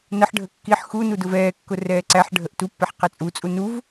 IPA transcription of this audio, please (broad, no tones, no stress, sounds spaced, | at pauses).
n ə ħ ɖʱ ə kː i ħ x u n u d ʊ v ɛː kː ʊ r ɛː ǀ æ ħ ɖʱ ə ʔ t u pː ɛ ħ q ɛ t͡sʼ u t͡sʼ u n u v